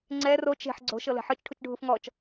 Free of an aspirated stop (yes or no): no